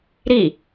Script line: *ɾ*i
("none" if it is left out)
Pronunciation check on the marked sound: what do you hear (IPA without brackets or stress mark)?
ɾ